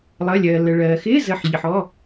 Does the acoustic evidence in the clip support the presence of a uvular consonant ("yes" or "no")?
no